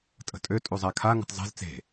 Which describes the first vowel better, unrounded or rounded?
unrounded